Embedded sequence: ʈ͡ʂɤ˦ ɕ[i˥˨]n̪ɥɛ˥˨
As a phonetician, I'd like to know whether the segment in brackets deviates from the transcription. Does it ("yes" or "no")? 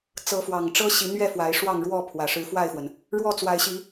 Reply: yes